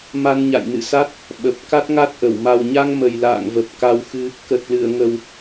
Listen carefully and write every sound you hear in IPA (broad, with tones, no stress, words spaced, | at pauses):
ma˧nɲa̰˧˨jnɨ̰˧˨sa˦˥t̚ | ɓə˨˩p̚ ka˦˥t̚ŋa˦˥t̚ʔə˧˩w ma˨˩wɲa˧ŋ mə˨˩jla̰ː˧˨ŋvə˨˩p̚ ka˧wxɨ˧ | kə˨˩t̚lɨ˧˩ə̯ŋə˨˩w